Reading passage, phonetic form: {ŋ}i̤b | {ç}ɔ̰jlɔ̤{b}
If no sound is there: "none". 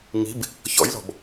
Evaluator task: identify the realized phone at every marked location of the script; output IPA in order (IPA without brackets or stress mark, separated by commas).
ŋ, ç, b